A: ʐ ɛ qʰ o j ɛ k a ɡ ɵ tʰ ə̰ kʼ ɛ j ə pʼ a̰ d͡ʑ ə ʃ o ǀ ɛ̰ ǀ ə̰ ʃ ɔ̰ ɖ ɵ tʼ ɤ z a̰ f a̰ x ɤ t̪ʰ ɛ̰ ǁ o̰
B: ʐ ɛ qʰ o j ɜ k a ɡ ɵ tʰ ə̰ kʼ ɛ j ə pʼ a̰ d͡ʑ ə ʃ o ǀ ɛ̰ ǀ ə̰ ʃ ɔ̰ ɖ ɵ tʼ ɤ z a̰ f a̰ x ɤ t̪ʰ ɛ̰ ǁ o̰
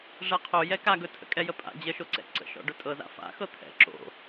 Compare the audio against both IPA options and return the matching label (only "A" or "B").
A